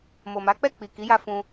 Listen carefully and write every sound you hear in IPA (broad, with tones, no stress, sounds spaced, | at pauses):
m o˨ m a˨˦ k͡p ɛ˦˨ k͡p i˨ k i˨˦ j a˧ f ũ˧